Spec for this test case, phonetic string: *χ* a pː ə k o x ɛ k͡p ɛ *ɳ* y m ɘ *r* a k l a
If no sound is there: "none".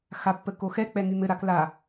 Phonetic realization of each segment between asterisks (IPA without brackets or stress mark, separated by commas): x, ŋ, ɾ